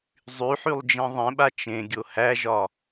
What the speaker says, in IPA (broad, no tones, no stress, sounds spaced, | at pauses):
zˤ y ħ y lˠ d͡ʒ ẽ ðˤ ẽ ɓ a t͡ʃ ẽ ɡʲ o h æ ʒ ɒ